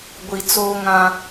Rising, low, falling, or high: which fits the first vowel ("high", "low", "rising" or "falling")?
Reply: low